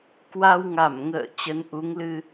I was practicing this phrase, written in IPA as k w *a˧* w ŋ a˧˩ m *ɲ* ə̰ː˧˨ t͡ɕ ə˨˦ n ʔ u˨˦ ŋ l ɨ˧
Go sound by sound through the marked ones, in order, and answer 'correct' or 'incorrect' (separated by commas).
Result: correct, incorrect